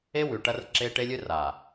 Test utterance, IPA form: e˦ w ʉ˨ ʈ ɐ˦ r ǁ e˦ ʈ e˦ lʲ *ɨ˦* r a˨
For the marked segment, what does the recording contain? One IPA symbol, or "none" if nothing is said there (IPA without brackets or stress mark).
ɨ˦